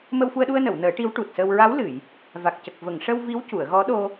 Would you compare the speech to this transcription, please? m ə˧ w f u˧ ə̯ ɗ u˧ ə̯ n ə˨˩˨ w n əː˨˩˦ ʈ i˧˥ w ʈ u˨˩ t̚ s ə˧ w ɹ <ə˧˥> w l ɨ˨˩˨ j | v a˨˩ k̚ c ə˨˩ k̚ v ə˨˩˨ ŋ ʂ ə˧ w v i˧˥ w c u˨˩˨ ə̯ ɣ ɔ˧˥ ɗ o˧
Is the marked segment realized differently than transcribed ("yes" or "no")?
yes